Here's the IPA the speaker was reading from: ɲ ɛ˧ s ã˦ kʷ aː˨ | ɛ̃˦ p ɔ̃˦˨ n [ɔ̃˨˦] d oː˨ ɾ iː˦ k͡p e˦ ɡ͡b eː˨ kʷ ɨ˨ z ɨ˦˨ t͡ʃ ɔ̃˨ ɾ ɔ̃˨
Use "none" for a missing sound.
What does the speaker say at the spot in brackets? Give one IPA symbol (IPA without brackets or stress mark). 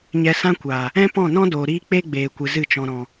ɔ̃˦